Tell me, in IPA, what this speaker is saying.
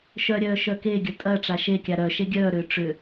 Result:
ʃœɾʲœː ʃœkeɡʲə tʼɐ ʈ͡ʂaʃekʲa ɾœ ʃeɡʲœːɾʏː ʈ͡ʂʏ

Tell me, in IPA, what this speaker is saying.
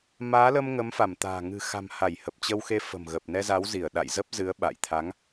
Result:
maː˨˦lə˧m ŋə˨˦mfa˧˩mt̪a̤ː˨˩ ŋɨ̤˨˩xa̤˨˩m ha˧˩jhə˨˩p̚t͡ɕə˧wxe˧ fə̤˨˩mɣə˨˩p̚nɛ˧za˨˦w zi˧˩ə̯ɗa̰˧˨j zə˦˥p̚ zɨ˨˦ə̯ ɓa̰˧˨jt̪ʰa˨˦ŋ

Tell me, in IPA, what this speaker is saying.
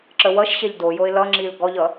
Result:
ǁəwʌʃɕɛʎ dojoɪ̯ lʌŋ͡ǁil ɡɔʎʌ

